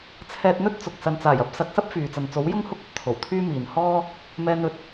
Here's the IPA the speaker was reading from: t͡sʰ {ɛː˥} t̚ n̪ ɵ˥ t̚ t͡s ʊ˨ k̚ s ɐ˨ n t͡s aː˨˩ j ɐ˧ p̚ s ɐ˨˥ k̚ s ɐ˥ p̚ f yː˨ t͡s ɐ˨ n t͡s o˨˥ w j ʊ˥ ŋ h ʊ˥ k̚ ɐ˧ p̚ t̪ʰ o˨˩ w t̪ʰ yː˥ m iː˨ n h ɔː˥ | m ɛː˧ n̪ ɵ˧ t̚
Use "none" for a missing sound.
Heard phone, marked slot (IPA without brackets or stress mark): ɛː˧